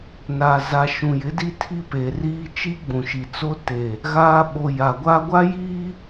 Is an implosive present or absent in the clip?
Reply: present